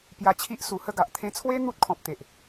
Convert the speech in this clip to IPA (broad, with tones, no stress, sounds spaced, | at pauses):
p j a˧ t͡ɕʰ i˦ ʔ s u˨˩ h ə˥˧ ɡ a˨ ʔ t̪ʰ ẽ˧ t͡sʰ w e˦ n̪ u˦ t̚ kʰ ɔ̃˨ p̚ t̪ e˨ ʔ